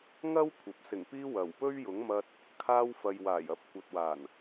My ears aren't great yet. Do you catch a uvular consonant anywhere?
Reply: no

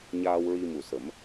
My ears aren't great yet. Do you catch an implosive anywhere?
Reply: no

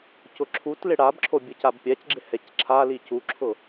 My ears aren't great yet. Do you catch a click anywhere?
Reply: yes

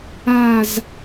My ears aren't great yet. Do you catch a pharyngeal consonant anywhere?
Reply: no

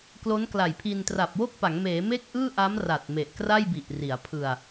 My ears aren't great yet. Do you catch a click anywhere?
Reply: no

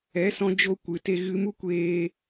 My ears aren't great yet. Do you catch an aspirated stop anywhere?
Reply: no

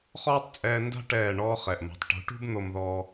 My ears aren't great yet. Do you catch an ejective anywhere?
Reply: yes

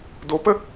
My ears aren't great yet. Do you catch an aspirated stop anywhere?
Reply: no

